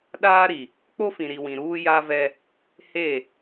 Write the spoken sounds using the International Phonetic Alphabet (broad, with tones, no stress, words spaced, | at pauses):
ɗaː˦ɾi˨ | k͡po˦fĩ˨ɾi˨wĩ˨ ɾuː˦ja˦vɛ˦ | he˦˨